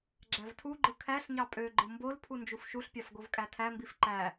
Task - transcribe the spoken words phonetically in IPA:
ɡ͡ǁ æ v tʰ u ɡ͡ǃ ɯ kʰ æ ɬ ɲ ɑ pʼ ø ɡ͡ǃ ɯ m b o l pʰ u n d͡ʒ u f ʃ u ɬ pʲ ɑ f ɡ o v kʼ æ tʰ æ m b i f ǃ æ

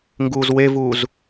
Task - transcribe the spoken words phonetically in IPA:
ŋ ɡ uː z w e v uː z

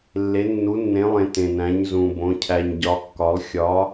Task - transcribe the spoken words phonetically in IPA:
lː e˨˦ nː u˨˦ nː ẽ˨˦ lˠ ẽ˨ t ẽ˨ n æ̃˨˦ ɲ z ũ˨ b õ˨˦ cʰ æ˨ ɲ ɟ ɒ˨˦ kː ɒ˨˦ lˠ xʲ ɒ˨˦

